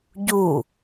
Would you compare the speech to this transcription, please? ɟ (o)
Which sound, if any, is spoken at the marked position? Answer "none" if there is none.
u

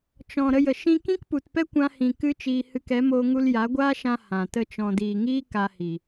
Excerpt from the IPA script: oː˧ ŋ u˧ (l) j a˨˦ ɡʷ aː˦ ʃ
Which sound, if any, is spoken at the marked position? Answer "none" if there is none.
l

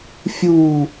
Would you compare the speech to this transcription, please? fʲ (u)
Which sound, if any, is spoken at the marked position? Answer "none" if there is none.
u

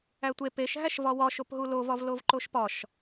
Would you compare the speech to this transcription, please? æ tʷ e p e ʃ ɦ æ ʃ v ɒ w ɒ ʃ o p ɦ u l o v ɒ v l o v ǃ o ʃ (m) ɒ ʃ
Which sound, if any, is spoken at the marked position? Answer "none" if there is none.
p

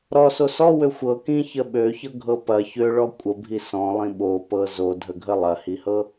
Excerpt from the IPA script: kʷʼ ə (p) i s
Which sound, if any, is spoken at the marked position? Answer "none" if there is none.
bʱ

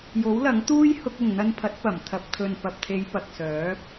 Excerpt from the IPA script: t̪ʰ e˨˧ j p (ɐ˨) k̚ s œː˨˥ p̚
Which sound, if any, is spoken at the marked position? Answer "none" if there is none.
ɐ˨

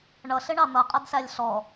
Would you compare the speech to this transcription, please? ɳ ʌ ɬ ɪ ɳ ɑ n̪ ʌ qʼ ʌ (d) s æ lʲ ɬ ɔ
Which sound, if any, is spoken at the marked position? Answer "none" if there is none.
d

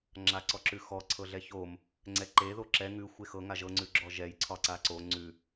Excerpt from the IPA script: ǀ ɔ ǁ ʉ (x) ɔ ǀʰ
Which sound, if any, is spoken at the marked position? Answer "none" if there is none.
x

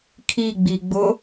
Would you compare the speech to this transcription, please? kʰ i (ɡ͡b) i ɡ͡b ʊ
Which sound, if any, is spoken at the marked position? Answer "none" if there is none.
ɡ͡b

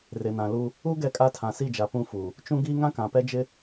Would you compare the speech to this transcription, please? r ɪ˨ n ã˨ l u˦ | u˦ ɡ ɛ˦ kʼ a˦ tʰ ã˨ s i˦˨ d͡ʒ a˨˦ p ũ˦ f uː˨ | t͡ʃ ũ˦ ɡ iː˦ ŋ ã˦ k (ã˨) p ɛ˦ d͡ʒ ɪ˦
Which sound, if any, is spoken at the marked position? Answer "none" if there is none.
ã˨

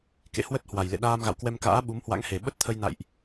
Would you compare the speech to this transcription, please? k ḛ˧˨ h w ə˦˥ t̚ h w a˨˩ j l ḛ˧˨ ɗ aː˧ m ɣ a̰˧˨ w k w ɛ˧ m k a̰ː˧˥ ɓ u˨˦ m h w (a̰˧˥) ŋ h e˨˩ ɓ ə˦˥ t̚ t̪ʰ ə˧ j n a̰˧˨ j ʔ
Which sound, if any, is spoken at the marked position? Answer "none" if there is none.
a̰˧˥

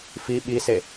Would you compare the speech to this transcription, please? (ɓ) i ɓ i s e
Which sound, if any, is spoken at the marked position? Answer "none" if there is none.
f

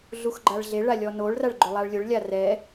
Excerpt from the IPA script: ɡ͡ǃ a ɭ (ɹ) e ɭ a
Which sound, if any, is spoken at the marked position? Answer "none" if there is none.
ɮ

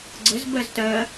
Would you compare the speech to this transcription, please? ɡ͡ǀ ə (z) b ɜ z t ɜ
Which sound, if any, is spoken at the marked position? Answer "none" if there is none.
z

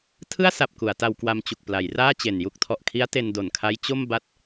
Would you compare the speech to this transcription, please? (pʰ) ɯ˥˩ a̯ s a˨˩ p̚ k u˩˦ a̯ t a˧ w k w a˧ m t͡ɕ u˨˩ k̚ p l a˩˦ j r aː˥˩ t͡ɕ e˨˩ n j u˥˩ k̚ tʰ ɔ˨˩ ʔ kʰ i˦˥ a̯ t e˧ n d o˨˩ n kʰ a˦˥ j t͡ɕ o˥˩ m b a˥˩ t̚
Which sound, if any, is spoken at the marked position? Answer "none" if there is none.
tʰ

